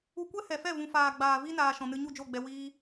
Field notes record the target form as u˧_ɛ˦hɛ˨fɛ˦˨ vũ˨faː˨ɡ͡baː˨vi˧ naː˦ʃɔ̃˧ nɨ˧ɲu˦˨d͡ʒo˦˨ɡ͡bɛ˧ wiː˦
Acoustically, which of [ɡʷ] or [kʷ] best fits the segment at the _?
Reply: kʷ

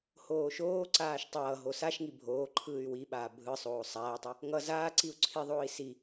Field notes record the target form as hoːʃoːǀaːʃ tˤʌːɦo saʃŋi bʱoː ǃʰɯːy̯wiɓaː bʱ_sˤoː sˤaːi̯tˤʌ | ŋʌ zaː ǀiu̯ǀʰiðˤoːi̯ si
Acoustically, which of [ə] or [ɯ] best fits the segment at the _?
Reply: ɯ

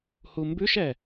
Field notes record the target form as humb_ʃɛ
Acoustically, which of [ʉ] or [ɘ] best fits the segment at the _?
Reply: ʉ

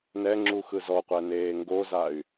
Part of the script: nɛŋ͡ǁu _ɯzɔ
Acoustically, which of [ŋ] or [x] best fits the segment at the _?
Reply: x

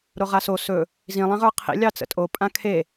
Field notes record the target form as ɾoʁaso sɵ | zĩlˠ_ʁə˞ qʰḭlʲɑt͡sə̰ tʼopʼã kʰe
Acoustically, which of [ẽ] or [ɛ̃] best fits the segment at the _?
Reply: ẽ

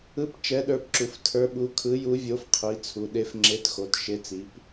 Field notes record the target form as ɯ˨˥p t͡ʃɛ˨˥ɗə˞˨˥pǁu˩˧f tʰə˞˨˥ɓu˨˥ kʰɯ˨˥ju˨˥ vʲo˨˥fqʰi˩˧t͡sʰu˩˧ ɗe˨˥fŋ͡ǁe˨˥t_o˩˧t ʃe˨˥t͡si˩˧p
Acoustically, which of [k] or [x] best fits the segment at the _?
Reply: x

